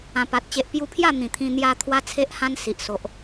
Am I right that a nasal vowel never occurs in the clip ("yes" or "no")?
no